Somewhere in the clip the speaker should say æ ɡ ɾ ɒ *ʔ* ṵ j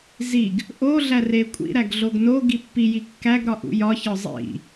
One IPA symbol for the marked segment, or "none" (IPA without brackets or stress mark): ʔ